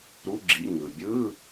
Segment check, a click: present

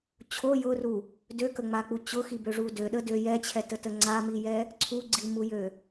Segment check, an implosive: present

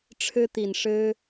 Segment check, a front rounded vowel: absent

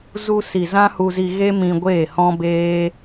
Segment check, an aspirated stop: absent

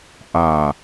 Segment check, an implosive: absent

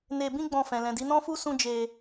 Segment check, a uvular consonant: absent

